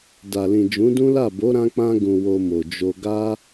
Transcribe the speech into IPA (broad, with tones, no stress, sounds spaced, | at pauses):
d a˨ l ĩ˨ d͡ʒ ũ˨˦ d ũ˦ l a˦˨ b o˨˦ ɾ ã˧ k͡p ã˧ ɡ ũ˨ w o˧ m o˨ d͡ʒ o˧ ɡ a˧